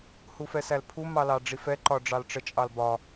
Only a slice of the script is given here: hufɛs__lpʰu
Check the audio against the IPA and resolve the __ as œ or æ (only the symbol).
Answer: æ